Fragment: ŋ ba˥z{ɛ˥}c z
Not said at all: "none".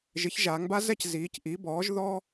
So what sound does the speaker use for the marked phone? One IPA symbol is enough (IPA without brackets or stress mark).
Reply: ɛ˥